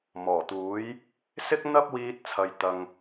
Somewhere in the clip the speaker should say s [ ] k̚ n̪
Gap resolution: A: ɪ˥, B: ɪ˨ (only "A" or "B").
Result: A